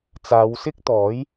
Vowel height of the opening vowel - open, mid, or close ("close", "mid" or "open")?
open